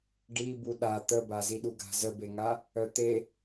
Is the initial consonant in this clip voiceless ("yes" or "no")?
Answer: no